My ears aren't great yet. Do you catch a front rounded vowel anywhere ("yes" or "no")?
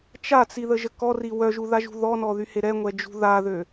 yes